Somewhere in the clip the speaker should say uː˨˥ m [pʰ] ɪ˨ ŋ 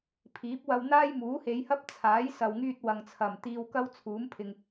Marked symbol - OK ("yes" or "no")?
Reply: yes